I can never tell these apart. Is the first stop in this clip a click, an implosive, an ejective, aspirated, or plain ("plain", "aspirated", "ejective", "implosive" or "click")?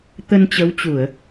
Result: plain